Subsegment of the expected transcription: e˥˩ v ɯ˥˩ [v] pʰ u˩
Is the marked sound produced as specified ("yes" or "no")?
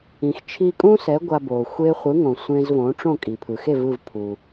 yes